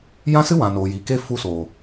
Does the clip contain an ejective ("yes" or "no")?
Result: no